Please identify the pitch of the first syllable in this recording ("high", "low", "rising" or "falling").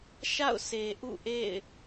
falling